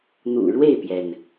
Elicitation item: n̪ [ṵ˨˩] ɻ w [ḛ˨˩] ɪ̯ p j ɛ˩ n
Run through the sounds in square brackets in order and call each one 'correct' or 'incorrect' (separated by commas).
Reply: correct, incorrect